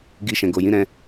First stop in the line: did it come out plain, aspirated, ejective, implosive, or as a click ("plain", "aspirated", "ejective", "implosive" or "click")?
plain